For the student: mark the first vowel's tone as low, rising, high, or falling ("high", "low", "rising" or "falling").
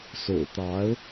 low